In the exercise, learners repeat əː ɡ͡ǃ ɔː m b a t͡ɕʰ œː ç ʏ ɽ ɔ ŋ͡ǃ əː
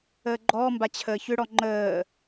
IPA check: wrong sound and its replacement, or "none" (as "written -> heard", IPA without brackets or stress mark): œː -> əː